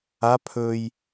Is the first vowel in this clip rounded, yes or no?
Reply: no